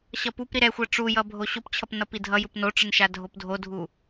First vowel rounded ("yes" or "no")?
no